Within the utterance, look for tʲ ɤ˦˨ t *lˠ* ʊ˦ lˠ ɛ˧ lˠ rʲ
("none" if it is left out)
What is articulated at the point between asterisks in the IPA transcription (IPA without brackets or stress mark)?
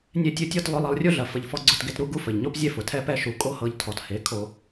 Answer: lˠ